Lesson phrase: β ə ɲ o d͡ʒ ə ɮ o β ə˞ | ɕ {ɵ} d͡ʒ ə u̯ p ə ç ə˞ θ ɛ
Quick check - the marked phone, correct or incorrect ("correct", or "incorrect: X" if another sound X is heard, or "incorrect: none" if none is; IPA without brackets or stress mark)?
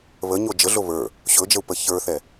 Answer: correct